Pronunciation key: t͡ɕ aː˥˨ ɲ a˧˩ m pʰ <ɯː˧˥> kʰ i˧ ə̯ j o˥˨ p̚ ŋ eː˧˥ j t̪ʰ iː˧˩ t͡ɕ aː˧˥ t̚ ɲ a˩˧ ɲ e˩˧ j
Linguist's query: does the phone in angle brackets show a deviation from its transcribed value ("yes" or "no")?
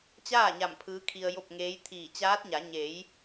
no